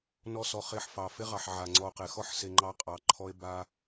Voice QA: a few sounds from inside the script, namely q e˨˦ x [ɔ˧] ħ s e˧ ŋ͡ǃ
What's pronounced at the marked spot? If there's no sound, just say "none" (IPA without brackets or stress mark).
ɔ˦